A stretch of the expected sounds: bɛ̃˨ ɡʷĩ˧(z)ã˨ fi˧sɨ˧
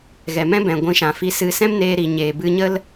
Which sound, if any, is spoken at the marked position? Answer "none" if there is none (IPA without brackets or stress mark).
ʃ